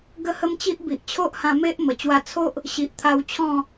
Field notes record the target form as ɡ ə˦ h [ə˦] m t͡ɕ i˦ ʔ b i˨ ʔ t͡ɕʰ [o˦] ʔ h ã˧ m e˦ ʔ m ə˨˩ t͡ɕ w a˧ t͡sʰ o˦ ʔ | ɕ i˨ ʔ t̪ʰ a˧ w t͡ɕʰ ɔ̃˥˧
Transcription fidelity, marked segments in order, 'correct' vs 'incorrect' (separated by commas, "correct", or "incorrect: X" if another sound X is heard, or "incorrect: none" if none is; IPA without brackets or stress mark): correct, correct